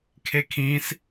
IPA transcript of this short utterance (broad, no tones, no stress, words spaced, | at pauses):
kʰekʰĩs